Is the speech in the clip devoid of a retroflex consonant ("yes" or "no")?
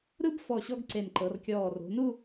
yes